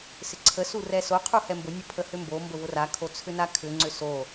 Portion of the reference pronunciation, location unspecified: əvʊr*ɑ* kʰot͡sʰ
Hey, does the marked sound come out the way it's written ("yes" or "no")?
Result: no